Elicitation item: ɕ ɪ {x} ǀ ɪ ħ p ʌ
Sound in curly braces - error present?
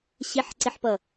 yes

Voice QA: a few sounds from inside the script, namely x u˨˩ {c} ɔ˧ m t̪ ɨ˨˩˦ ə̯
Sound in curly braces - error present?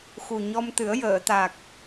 yes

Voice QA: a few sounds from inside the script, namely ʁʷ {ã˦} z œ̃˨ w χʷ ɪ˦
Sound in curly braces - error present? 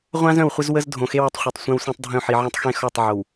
no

